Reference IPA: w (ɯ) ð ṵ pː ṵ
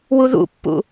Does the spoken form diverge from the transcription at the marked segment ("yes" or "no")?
yes